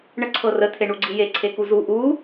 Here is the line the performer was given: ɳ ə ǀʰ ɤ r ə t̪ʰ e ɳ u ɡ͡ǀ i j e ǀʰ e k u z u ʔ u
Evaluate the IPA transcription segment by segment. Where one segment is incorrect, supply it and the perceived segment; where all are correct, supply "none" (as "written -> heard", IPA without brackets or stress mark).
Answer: none